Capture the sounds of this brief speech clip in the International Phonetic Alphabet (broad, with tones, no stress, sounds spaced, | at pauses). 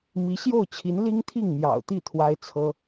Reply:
m i˧˥ ɕ j o˥˩ ʊ̯ t͡ɕʰ i˧˥ n l i˥ ŋ t̪ʰ i˥˩ ŋ m j ɑ̰˨˩ ʊ̯ t̪ i˥˩ t̪ʰ w a˥ ɪ̯ t͡sʰ ɤ˥